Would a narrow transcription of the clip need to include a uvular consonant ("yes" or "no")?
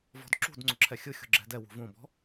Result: no